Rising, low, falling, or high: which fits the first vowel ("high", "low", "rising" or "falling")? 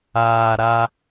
low